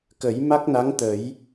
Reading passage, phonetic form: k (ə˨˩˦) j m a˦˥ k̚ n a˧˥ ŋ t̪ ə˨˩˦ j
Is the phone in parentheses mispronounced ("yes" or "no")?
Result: no